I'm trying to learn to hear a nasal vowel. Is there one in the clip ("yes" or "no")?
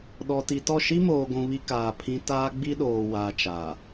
yes